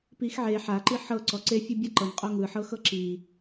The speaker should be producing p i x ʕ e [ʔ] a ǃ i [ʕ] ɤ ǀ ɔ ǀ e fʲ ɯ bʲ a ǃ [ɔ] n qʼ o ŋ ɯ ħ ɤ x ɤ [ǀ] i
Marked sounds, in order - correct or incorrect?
incorrect: ħ, incorrect: ħ, incorrect: ɤ, incorrect: ǁ

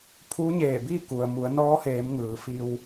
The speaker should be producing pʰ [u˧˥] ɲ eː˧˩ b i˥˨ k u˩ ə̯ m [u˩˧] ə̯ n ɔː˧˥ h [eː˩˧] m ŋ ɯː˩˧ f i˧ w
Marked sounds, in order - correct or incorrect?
correct, correct, correct

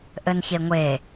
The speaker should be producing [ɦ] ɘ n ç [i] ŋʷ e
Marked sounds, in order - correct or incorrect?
incorrect: ʔ, incorrect: e

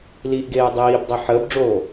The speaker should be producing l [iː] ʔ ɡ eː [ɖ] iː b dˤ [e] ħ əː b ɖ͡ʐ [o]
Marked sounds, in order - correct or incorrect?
correct, incorrect: dˤ, correct, incorrect: oː

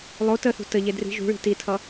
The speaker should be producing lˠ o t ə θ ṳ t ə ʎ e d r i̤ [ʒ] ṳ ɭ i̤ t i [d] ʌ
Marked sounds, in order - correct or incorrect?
correct, incorrect: tʰ

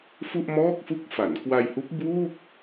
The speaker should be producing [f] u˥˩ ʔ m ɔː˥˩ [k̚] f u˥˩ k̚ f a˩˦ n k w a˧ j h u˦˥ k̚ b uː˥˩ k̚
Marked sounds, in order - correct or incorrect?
correct, correct

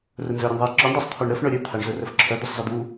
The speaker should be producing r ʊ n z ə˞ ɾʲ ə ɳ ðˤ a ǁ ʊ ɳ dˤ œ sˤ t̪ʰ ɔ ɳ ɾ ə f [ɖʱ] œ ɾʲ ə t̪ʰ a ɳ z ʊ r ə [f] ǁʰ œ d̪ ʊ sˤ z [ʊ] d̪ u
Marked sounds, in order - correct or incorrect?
incorrect: ɳ, correct, incorrect: ə

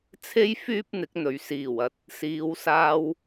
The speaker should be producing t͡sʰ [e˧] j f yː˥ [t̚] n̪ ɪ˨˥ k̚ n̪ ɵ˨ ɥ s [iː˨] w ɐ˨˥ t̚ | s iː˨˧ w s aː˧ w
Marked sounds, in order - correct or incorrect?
incorrect: e˥, incorrect: p̚, incorrect: iː˨˩

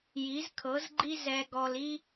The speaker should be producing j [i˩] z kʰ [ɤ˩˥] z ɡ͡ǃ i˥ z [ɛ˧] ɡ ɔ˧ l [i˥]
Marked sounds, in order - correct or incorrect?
incorrect: i˩˥, correct, correct, correct

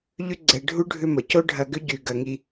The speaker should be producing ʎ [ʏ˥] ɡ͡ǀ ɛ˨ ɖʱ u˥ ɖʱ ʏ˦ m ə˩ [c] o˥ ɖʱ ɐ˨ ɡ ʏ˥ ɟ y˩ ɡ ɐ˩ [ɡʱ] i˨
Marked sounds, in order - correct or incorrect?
correct, correct, incorrect: ŋ

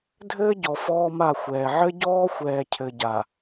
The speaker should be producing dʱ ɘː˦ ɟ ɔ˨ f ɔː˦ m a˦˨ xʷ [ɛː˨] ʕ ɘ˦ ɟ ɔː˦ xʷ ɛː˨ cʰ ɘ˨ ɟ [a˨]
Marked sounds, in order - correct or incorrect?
correct, correct

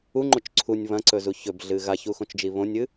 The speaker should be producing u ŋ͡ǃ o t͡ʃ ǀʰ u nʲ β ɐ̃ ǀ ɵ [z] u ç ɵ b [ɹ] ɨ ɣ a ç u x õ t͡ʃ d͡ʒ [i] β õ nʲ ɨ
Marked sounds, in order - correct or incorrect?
correct, incorrect: ɮ, correct

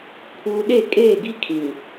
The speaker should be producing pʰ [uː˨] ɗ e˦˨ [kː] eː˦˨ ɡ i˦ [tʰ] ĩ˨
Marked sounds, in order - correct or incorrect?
correct, incorrect: kʼ, incorrect: kʰ

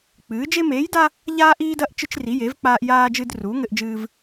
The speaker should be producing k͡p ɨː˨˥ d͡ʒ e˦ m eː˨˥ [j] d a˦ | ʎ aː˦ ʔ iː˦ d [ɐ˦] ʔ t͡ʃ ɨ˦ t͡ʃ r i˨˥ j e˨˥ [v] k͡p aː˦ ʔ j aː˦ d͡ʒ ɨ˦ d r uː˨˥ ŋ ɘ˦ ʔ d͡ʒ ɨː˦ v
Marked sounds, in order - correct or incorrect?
correct, correct, correct

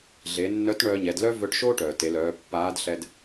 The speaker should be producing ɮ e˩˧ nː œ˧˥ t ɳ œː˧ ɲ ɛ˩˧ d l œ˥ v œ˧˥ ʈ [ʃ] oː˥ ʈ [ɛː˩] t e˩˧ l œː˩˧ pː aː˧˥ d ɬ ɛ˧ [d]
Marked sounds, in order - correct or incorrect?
correct, incorrect: œː˩, correct

